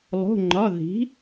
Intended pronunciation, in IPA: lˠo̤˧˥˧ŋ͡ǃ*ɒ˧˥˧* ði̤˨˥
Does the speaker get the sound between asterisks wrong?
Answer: no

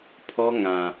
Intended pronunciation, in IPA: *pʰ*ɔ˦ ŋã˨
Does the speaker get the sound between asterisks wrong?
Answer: no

